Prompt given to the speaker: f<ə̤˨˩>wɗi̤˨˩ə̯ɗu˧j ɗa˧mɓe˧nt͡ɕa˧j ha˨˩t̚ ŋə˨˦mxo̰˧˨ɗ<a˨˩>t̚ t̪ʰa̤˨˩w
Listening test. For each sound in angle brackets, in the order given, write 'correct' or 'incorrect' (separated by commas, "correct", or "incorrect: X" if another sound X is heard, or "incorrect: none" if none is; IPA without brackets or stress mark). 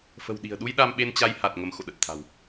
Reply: correct, incorrect: ə˨˩